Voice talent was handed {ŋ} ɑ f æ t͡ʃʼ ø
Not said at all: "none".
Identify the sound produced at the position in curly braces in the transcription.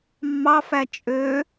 mː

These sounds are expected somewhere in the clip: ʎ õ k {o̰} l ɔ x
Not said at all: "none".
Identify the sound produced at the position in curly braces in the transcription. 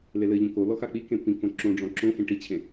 o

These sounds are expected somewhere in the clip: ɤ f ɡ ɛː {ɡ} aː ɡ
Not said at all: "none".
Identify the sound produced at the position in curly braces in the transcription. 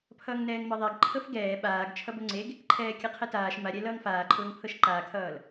ɓ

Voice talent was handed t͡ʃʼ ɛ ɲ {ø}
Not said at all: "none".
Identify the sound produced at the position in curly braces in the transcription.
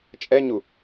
u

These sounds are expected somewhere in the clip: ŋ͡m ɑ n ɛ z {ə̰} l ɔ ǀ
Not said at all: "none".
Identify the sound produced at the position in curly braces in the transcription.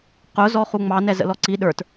ə̰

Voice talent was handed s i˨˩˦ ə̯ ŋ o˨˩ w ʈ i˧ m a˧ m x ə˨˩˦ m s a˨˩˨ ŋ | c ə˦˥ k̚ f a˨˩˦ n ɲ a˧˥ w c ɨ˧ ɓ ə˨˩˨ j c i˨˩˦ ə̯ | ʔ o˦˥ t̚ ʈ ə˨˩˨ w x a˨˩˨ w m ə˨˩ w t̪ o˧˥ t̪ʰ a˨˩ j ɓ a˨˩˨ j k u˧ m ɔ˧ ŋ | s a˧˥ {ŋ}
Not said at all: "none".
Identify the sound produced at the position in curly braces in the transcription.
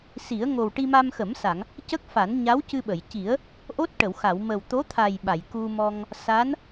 n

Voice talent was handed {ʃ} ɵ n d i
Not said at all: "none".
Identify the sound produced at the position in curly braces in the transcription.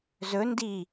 z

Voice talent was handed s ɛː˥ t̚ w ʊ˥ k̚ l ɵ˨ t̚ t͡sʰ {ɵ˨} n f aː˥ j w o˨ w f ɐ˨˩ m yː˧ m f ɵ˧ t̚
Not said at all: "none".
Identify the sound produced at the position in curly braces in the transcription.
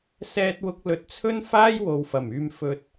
ɵ˥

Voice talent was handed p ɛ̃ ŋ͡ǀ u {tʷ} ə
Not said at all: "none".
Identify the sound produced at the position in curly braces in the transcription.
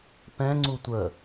tʷ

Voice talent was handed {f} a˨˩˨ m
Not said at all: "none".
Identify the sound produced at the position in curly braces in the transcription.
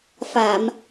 f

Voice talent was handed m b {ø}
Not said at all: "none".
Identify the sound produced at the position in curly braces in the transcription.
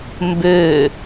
ø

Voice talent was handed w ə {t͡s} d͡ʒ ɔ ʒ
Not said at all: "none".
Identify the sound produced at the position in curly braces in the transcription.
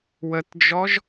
t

